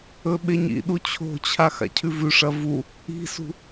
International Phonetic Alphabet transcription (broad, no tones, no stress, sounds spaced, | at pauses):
ɵ ɓ e ɲ ḭ ɗ u t͡ɕʰ o̤ t͡ɕʰ a x a̰ cʰ ʉ v ʉ ʂ ɐ v u | i̤ s ṳ